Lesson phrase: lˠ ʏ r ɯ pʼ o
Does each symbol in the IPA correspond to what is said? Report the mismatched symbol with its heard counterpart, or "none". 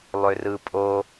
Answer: none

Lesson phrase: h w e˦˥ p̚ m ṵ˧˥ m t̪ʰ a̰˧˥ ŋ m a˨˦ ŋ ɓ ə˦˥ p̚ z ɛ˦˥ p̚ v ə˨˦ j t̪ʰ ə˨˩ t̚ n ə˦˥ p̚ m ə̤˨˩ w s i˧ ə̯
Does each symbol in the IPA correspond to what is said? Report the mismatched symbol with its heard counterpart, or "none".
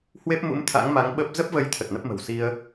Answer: ɛ˦˥ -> ə˦˥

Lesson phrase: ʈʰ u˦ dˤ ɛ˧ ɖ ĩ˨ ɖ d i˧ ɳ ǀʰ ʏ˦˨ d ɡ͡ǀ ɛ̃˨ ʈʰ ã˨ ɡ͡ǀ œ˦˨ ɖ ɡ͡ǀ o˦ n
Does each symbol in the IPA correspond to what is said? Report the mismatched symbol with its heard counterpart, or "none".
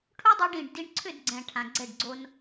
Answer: œ˦˨ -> ɛ˦˨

